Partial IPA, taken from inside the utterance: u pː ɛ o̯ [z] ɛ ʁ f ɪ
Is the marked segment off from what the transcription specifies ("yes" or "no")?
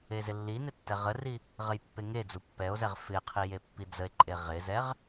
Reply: no